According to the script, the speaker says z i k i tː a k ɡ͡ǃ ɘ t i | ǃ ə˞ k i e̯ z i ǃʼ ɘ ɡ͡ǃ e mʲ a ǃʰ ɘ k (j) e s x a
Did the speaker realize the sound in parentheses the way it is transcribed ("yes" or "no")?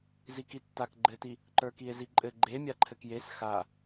yes